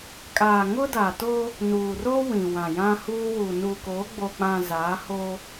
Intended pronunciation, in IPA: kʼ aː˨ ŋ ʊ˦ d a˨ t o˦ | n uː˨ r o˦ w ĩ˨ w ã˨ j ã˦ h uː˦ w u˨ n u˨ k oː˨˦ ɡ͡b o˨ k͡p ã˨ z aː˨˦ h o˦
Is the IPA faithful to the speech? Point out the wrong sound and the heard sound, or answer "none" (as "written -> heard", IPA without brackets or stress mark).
none